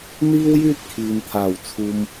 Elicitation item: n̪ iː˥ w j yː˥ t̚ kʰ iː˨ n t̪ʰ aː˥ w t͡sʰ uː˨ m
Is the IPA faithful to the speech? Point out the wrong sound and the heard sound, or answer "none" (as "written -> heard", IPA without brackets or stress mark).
aː˥ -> aː˨˩